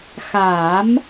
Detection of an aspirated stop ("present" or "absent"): absent